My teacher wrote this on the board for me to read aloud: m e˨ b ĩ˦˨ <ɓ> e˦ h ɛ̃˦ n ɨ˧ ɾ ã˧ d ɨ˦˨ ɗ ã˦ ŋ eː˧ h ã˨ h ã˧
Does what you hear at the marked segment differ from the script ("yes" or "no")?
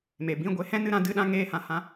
yes